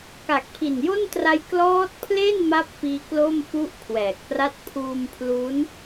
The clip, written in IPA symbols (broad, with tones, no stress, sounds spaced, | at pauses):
k a˨˩ k̚ pʰ i˨˩ n j o˥˩ n t r a˦˥ j k l ɔː˦˥ t̚ pʰ l e˥˩ n m a˥˩ p̚ f iː˦˥ k l o˥˩ m f u˥˩ ʔ kʰ w ɛː˨˩ k̚ p r a˥˩ t̚ pʰ uː˧ m pʰ l u˦˥ n